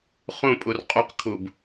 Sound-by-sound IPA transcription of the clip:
χũpʼur qʼuqkʰub

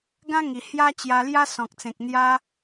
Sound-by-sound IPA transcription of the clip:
ɡã˦ŋi˨˩ hja˦t͡ɕja˧lja˦ sɔ̃˨k̚t͡sẽ˨k̚n̪ja˦

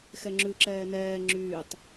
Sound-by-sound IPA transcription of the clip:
xɛŋ͡ǁʉǁɛː nɛː ŋ͡ǁyːtˤ

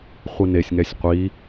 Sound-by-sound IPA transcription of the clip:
χʷinesʲŋɛsʲ qʷi

